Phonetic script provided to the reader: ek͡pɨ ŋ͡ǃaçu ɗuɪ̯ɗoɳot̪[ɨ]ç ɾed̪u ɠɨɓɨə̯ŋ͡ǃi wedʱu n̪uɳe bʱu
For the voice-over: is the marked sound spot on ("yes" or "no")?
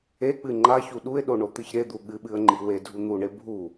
yes